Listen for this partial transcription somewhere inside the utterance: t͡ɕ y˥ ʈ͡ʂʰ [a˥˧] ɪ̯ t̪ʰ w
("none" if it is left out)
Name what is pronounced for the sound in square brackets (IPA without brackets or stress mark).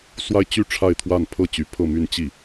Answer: a˥˧